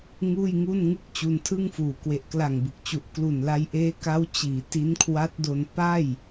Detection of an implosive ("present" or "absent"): absent